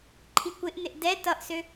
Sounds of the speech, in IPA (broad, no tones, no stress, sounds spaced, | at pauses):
ǃʰ i kʷ ɪ ʔ n ɪ ʔ d ɛ t ʌ ʔ s ø